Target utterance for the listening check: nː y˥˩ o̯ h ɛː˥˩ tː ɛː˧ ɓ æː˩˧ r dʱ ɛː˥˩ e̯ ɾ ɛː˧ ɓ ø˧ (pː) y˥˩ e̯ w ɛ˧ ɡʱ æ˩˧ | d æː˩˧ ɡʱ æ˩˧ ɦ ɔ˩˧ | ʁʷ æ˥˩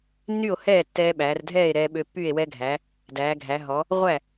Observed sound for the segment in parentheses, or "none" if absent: pː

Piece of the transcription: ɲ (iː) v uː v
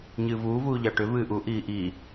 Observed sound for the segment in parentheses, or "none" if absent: ɨː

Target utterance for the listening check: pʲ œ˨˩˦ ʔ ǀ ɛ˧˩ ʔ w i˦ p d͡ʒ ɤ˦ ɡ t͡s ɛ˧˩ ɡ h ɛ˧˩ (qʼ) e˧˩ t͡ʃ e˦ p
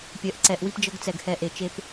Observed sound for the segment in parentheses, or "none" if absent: ʔ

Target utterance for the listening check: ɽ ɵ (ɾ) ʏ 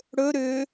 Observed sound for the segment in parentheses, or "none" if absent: ɾ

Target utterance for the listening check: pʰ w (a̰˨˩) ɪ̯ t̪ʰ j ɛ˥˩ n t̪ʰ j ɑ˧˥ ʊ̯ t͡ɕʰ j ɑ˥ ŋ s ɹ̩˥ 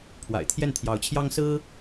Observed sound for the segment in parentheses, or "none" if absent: a̰˨˩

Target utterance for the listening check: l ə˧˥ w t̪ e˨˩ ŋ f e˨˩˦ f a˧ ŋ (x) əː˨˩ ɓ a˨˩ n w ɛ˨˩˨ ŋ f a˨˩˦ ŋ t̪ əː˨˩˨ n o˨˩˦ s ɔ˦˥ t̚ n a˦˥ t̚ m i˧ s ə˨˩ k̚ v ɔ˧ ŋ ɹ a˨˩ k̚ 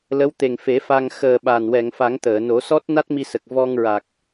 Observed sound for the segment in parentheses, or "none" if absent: x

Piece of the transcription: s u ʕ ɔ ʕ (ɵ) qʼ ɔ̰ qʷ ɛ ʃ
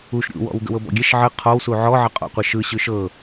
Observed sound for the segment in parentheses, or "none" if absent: ə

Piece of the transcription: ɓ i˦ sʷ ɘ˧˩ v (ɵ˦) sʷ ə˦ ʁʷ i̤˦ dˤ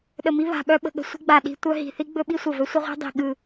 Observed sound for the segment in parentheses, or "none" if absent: ɵ˦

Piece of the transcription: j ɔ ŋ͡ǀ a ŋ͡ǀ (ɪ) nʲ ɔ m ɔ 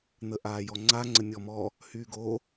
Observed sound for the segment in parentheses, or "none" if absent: ə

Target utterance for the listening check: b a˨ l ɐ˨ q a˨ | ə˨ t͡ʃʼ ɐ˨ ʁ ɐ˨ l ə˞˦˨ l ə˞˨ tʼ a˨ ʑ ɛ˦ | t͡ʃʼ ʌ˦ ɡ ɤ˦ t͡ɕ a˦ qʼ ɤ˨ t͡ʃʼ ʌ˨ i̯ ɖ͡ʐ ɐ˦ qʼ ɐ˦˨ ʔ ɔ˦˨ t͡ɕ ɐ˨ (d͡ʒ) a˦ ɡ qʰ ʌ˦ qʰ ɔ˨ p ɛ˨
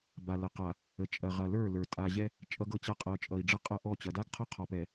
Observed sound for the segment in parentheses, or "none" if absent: d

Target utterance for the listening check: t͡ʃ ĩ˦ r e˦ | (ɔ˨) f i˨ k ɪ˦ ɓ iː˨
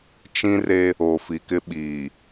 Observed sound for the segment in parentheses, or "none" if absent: o˨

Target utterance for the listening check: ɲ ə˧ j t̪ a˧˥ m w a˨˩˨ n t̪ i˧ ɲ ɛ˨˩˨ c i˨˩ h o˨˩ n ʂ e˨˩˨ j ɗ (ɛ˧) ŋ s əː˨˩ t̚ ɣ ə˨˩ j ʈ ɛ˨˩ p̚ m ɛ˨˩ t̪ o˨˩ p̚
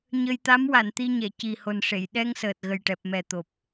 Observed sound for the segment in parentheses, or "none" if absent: ɛ˧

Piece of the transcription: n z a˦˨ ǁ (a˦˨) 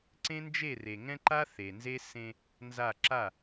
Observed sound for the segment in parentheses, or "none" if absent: a˦˨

